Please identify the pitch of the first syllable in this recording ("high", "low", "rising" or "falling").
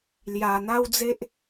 low